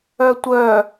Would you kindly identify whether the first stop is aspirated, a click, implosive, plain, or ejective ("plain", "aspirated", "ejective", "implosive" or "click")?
plain